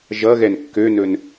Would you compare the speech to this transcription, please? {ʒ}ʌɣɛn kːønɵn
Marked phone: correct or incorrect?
correct